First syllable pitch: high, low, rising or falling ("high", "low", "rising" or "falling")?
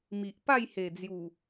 low